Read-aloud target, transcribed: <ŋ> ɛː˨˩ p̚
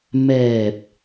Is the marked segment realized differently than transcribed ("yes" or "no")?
yes